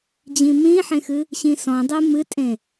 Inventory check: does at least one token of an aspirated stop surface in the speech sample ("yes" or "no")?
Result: no